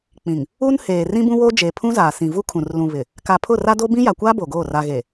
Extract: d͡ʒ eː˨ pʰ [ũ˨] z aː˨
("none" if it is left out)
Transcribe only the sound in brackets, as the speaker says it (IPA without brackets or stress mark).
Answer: ũ˦